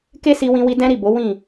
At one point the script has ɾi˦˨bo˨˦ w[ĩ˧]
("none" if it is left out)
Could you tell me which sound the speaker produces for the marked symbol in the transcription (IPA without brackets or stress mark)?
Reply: ĩ˦˨